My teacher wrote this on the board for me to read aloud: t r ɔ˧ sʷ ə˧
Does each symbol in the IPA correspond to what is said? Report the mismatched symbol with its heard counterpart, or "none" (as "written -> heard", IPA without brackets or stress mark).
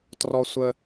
none